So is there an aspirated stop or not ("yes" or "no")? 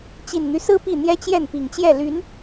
no